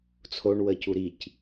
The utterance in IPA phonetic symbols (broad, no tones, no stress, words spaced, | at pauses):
t͡sʰoɳwəːcu ɾic